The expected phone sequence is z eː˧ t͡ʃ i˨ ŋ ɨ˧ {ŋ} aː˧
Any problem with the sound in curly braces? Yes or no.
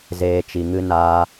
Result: yes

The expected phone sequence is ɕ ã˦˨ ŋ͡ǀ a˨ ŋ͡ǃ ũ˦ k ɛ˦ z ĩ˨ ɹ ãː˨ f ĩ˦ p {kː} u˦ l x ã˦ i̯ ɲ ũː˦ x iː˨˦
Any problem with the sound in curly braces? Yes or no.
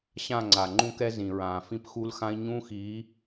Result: yes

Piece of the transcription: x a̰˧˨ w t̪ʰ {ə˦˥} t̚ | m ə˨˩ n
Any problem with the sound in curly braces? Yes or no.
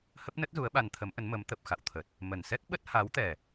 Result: yes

